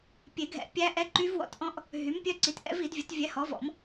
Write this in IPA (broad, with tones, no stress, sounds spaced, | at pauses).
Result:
pʲ e˨˩˦ ɡʱ ɛ̰˨˥ pʲ æ˦˥ ʔ ɛ˦˥ ǃ y˦˥ v w ɔ̰˨˥ t ʔ ɔ̃˦˥ ʔ | ɦ y˨˥ m pʲ œ˦˥ ǀ i˨˥ t ʔ ɛ̰˦˥ v i˨˩˦ d vʲ ɵ˨˥ t vʲ ɛ˨˥ h ɔ˨˥ v ɔ̰˨˩˦ m